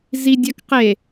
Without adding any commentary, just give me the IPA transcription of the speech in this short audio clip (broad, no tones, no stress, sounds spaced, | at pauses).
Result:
z i dʲ a k q e